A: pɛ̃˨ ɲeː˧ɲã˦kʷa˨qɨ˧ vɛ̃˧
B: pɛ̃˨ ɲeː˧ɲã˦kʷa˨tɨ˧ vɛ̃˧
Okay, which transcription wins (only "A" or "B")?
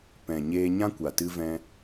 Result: B